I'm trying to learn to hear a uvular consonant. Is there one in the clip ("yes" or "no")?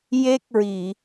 no